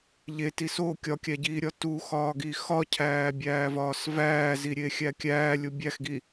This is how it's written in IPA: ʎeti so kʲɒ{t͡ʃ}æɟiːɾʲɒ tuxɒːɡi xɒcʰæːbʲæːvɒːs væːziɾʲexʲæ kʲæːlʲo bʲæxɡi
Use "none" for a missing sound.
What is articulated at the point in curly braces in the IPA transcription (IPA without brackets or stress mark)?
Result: kʲ